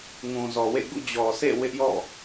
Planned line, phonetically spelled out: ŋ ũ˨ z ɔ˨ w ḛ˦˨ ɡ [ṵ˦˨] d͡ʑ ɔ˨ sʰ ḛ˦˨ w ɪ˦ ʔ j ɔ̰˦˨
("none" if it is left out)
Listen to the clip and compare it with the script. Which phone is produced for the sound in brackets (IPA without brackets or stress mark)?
ṵ˦˨